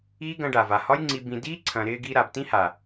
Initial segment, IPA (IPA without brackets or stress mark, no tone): iː